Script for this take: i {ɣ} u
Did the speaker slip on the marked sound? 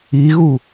no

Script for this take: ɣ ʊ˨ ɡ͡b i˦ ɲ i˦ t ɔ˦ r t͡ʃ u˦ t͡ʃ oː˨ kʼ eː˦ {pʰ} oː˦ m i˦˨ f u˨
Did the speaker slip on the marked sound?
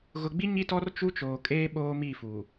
yes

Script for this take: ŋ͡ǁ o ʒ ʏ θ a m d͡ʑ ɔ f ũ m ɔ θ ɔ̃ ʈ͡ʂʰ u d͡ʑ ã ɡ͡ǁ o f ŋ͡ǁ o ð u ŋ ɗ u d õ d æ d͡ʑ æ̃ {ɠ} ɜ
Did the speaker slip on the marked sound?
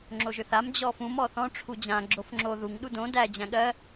no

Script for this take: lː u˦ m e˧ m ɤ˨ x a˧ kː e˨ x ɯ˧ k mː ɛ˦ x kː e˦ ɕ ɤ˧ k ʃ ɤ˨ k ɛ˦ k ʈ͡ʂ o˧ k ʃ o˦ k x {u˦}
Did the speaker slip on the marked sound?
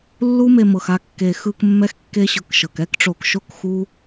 no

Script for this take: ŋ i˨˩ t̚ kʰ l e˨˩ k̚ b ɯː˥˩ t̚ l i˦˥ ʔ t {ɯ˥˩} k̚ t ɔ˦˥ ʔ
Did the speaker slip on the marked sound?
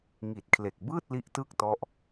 no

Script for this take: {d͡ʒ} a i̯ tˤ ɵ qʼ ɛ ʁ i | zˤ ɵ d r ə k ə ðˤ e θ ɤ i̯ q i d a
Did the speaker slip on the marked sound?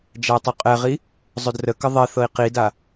no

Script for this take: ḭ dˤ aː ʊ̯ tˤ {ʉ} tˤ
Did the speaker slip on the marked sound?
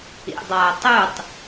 no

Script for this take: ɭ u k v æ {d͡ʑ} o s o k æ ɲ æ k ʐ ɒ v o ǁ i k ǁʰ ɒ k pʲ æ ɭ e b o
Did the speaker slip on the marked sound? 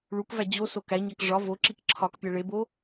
no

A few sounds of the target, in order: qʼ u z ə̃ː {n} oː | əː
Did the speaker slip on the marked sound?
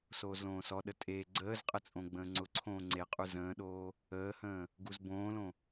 yes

